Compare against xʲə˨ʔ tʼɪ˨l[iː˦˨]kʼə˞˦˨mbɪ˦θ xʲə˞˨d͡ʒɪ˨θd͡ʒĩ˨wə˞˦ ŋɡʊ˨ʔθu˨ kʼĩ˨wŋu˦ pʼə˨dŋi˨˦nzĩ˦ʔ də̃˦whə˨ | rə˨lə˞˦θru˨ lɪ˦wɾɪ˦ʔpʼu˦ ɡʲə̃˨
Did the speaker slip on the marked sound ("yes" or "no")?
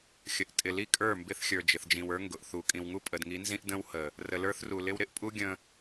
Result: yes